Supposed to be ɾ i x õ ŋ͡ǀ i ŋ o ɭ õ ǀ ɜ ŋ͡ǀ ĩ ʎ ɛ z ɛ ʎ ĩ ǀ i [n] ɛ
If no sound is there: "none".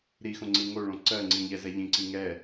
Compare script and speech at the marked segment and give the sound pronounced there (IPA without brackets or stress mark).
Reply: ŋ